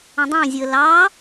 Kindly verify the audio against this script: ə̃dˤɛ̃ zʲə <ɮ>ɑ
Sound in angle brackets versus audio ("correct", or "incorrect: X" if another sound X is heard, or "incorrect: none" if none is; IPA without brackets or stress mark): incorrect: l